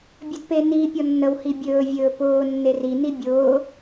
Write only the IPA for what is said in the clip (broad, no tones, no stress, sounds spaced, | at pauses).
bʲ ɵ d p e n i pʲ ɔ nː ə w h i bʲ ɵː vʲ ɵː p ʊː nː e r i n i bʲ ʊː